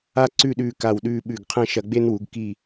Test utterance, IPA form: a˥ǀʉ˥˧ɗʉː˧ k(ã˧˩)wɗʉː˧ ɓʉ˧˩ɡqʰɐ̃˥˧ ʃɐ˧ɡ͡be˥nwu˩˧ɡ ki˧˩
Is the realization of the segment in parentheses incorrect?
yes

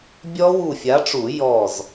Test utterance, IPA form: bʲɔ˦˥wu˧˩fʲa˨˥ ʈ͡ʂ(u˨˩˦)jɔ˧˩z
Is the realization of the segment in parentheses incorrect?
no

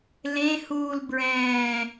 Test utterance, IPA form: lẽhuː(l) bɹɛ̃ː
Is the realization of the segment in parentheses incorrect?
no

